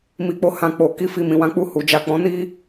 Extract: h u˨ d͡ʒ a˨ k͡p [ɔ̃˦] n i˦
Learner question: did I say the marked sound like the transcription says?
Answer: no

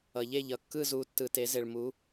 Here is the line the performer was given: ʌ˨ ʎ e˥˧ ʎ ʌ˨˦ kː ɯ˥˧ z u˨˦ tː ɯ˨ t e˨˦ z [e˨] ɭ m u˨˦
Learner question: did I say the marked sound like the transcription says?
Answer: yes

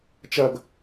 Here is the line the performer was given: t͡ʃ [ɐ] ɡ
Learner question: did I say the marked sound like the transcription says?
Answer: yes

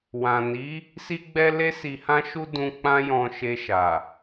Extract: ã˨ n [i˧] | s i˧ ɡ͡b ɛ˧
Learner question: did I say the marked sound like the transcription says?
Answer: no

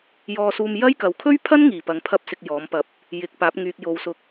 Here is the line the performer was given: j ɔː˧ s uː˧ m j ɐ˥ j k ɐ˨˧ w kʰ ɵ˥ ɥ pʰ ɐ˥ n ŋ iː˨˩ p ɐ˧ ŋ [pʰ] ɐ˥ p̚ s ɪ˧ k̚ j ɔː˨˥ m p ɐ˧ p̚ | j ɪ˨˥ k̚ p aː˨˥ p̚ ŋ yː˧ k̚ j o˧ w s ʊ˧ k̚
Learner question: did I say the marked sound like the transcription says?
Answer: yes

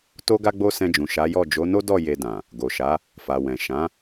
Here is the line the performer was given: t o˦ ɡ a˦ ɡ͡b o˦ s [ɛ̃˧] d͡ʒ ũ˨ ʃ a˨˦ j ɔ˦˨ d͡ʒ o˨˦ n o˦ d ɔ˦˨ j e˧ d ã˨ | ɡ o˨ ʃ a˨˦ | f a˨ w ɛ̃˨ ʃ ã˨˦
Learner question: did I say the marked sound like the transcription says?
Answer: yes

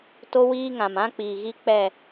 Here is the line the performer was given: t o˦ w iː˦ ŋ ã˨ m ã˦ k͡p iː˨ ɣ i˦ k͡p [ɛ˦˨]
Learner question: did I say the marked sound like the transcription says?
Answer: yes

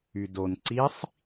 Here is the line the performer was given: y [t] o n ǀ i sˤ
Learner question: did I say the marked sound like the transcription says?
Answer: no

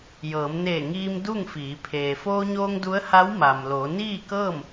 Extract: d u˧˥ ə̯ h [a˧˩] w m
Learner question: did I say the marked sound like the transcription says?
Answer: no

